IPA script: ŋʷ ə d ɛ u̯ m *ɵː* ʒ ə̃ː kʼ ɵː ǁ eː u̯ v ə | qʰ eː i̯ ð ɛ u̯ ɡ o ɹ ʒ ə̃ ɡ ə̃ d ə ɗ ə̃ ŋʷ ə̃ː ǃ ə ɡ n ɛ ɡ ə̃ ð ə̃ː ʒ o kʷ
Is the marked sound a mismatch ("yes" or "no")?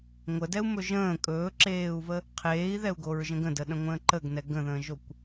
yes